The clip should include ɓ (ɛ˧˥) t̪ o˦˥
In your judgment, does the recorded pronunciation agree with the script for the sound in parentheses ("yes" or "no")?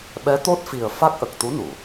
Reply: yes